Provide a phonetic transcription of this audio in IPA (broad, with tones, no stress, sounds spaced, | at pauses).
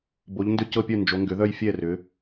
b o˩˧ ʎ n d ʏ˧˩ c ɤ˧˩ pʲ œ˧˩ n d͡ʒ o˩˧ ŋ ɡ ʏ˩˧ ð œ˧˩ j fʲ ɛ˧˩ r ʏ˩˧